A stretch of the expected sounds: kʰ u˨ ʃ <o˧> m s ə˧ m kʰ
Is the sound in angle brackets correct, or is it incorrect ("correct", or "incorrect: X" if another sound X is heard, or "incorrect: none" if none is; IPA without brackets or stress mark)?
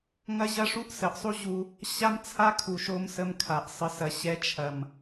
correct